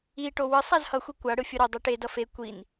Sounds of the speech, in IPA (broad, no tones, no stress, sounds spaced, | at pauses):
i ʈ o w ɯ sˤ a z h ʌ xʷ i kʷ a ɽ ɯ fʲ u ɾ o dˤ u ʈ e d ʌ f e kʷ i n